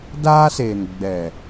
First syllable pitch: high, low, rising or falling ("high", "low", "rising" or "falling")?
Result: high